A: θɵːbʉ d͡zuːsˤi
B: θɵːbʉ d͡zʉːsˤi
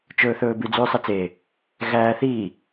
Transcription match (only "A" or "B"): B